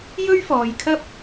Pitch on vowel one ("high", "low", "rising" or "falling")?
high